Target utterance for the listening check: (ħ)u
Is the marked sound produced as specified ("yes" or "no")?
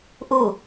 no